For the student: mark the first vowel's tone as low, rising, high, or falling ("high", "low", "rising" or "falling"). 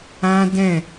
high